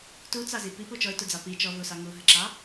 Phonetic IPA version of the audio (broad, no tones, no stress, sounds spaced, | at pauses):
t u t͡s ɑ z i p i p u t͡ʃ ɔ ɪ̯ t u d͡z ɑ p i t͡ʃ ɔ v u s ɑ ŋ u ɦ ə ǁ ɑ